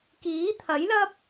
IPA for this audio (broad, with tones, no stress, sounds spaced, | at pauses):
k iː˨˥ t̪ʰ ɐ˨˥ j l ɐ˥ p̚